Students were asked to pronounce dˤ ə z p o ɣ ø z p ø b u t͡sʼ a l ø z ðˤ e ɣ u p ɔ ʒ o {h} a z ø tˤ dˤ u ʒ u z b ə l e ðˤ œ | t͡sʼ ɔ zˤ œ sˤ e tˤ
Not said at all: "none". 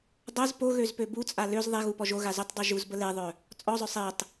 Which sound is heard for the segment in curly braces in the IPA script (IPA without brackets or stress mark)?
ɣ